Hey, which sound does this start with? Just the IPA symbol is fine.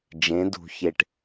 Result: d͡ʒ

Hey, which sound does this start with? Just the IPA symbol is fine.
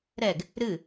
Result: ɾ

